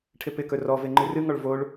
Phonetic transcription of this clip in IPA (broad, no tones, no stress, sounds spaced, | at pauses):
ʈʰ ɪ p ɪ k ɵ r ɔ v e ŋ͡ǃ ɨ r ɨ ŋ ɔ ɭ v o ɭ